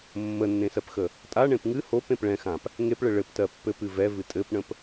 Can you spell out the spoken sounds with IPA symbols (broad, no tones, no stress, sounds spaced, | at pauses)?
mː ə nː ẽ s ɜ p x ə | tʼ a ɳ ẽ p ŋ ɨ h o p ẽ p ɭ ɛ̃ x ã p | ŋ e p ɭ ɘ ɭ ɘ p t ɜ pː ɘ p ɨ v ɛ v ɨ tʼ ɘ p ɳ ə̃ p